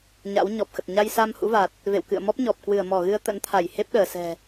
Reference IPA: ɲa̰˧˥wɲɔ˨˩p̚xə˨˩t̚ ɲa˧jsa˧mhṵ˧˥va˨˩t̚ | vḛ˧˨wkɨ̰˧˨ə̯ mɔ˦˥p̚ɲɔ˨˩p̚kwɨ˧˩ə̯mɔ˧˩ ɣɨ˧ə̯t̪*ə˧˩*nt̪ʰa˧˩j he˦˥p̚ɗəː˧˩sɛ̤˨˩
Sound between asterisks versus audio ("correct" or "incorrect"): incorrect